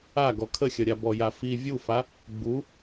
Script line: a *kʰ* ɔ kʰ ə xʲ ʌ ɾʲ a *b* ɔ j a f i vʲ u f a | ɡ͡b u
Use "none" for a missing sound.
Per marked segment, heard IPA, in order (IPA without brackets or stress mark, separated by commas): ɡ, b